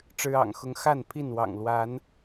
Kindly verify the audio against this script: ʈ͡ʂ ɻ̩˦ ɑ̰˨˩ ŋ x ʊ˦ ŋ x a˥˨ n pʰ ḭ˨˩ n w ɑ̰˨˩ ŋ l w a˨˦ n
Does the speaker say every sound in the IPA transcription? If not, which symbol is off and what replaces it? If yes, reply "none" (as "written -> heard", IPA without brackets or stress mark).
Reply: ḭ˨˩ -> i˥˨